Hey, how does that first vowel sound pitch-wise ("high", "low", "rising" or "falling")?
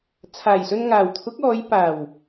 low